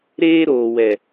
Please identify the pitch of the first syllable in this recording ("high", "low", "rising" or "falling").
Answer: high